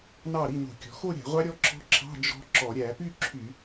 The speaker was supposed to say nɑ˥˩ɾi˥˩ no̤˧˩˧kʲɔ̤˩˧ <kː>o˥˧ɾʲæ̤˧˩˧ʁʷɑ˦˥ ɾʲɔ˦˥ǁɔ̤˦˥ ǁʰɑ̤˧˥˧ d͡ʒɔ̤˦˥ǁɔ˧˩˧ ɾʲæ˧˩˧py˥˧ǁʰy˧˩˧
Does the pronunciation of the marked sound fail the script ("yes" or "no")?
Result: yes